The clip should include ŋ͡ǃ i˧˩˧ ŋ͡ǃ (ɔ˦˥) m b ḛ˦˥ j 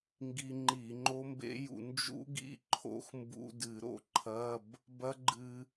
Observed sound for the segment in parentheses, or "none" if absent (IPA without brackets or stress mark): o˦˥